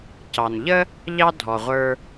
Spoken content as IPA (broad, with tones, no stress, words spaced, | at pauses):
cɑ˩nʎə˥ | ʎɑ˥ dʱɔ˩ʁʷə˞˧